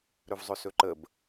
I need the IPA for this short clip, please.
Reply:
ɾɵvzˤɵsɵǃəb

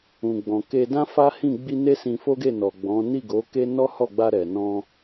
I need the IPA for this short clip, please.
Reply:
ũ˨ɡ͡bɔ̃˨ke˧dã˦ fa˦hĩ˦˨ ɡ͡bi˧ ne˦sĩ˧fo˦ɡe˦˨ nɔ˨ ɡ͡bɔ̃˨˦ ni˦˨ɡo˨˦ke˦ nɔ˦hɔ˦˨ɡ͡ba˧ ɾɛ˨nɔ̃˧

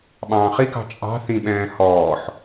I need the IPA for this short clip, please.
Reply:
ɓɑ̃ːχikɑ̤ t͡ʃʼɑ̤ θĩɓɛ̃ː hɔːħ

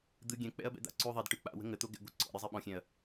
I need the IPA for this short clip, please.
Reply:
d̪ɯ ɡʲɛ̃k͡pɛ̰ɐ̯bɛ̰d̪a̰ ǀʉ ðˤɛd ʈɯ k͡pa̰wə̤ ŋət̪o ɡɛ̰ɡʷi̤ ǀɔ̰ɾʲɤzˤi ɓɔ̃xʲɛ̃ɐ̯

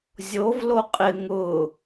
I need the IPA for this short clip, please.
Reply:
zʲov loqʼɪ ŋʊ

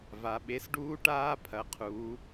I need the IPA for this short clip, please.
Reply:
va˩˧ɓe˨˥sɖuː˦˥ ʈaː˦˥pʰɐ˩˧qʰuː˩˧

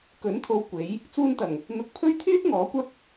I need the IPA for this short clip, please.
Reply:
kɵ˨˥nt̪ʰo˧wkʷe˨˥j | t͡suː˧nt̪ɐ˨˩ŋ | n̪ʊ˨˥k̚pʰɵ˥ɥ t̪ʰyː˥t̚ ŋɔː˨˥kʷɐ˥k̚

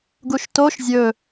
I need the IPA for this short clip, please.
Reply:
ɡuʃtoʃ zʲɵ

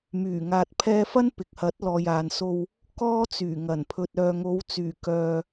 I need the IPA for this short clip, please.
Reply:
myː˨˩ŋaː˨t̚pʰɛː˧fɐ˥n pɪ˨k̚hɐ˨˥t̚ lɔː˨jaː˨nso˧w | kɔː˥t͡syː˨˩ŋɐ˨˩n pʰɵ˨t̚œː˨ŋo˨˥wt͡syː˨˩ kœː˧

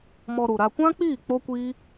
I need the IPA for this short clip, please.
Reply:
mɔ˧ɾu˨ɾa˧ kʷã˦k͡piː˦˨ k͡po˦kʷiː˦

